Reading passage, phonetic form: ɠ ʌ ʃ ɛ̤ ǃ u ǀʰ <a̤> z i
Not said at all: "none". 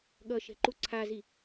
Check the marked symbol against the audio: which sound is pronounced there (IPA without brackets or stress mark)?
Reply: a